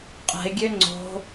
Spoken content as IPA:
qʼ ɛ̤ ɪ̯ ɡʲ ø ŋ͡ǀ o̤

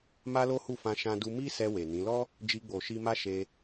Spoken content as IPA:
m a˦ l o˦ h u˦˨ f ã˧ ʃ ã˧ d u˧ m i˦ s ɛ˧ w e˨ n ĩ˨˦ l ɔ˦ | d͡ʒ i˧ ɡ͡b o˨ ʃ i˧ m a˦ ʃ e˧

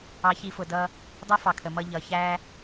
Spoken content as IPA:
ɑ˧ ç i˧ f ʊ˩ d ʌ˧ | dˤ ʌ˥ f ɑ˩ kʰ ə˩ m ʌ˧ ʎ ʌ˩ ç æ˧

